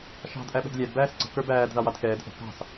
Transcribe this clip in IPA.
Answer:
ʃ ɑ̤ d ʔ æ ɓ ɛ̤ d lʲ æ d b æː s ǀ ə̤ k ə˞ b æː d ð ɑ w ɑ d k ɛː d ʔ ə̤ k ɑ̤ s

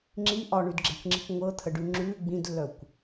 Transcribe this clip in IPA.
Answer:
ŋ͡ǁ i ʔ ɒ ɳ ʉ d ɡ͡ǁ ɛ̤ kʷ ŋ͡ǁ i̤ kʷ ŋʷ ɤ t̪ʰ ə ɖ ʉ ŋ͡ǁ ʉ ɡ͡b ĩ d lː œ kʷ

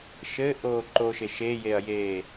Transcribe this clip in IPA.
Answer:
ʃ ɘː ʔ oː ǃ o ʃ e ʃ e j e ɐ̯ j eː

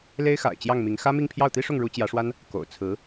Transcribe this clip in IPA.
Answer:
l e˥ ɪ̯ x a̰˨˩ ɪ̯ t͡ɕ j ɑ˥˩ ŋ m i˧˥ ŋ x ä˥ m i˥˧ ŋ pʰ j ɑ˥˩ ʊ̯ t̪ i˥ ʂ ʊ˥˩ ŋ ɻ u˧˥ t͡ɕ j ä˧˥ ʂ w a˥ n | k o̰˨˩ ʊ̯ t͡sʰ ɹ̩˧˥

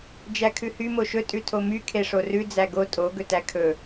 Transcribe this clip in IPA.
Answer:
d͡ʒ æ kʰ ʉ h y m o ʃ ɵ tʼ ʉ tʰ o m y kʰ e ʂ o r ʉ d͡z æ ɡ o tʼ o ɡ ɵ t æ kʰ ɵ

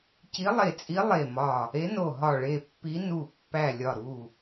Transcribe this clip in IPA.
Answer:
c i˧˥ lˠ e˧˩ t͡sʼ i˧˥ lˠ e˧˩ m ɒ˧˩ | e˧˥ n o˧˩ ɦ ɒ˧˩ ɭ e˧˩ pː i˧˥ n u˧˩ pː æ˧˩ lʲ ɒ˧˩ ɾ u˧˩

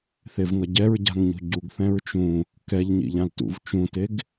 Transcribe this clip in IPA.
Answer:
θ e v ŋ ʌ ɟ ɛ ɹ ɟ a̤ ŋ ɲ ṳ ɟ u ɡ θ ɛ̃ ɹ t͡ʃ ũ | k ɛ ʎ ɲ ḭ ʎ ã l t ṵ v t͡ʃ ũ t e ɡ

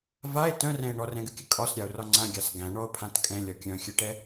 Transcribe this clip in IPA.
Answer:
v a e̯ t œ̃ r ɛ̃ e̯ ɳ ɔ r ɛ̃ ɡ ɨ kʲ ɨ kʼ ɒ s ɾʲ a o̯ r ɒ ŋ͡ǀ ã ɡʲ a s ɡ æ̃ ɳ ɔ o̯ pʰ ã t kʼ ɛ̃ lʲ ɒ kʲ œ̃ xʲ ɨ ʈ ɛ

